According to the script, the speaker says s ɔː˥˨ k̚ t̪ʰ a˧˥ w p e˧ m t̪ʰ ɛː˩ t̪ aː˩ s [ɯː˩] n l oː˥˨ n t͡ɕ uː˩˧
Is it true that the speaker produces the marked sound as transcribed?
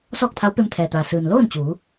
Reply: yes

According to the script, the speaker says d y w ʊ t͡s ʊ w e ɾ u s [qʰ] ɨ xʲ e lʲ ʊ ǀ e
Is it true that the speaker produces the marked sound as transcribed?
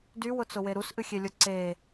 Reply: no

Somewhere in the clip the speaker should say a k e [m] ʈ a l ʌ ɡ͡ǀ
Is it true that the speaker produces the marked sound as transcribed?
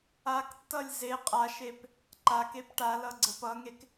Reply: no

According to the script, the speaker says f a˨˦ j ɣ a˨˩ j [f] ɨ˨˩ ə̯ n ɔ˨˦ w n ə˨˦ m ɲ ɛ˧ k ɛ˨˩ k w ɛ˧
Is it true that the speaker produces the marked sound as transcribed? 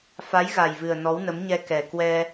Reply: no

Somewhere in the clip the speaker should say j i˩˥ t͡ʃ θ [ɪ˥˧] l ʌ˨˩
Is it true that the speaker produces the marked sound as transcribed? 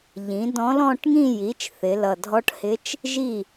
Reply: no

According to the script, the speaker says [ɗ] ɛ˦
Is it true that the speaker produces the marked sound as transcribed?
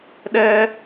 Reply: yes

